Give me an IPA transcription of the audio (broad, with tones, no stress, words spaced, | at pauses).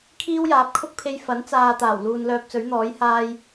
kʰiː˥wjaː˨˥p̚kʰʊ˥k̚pʰe˧j fɐ˨˥nt͡saː˨t̪aː˨˩w luː˨nlœː˧p̚t͡sɵ˨˥ɥn̪ɔː˨˥j haː˧j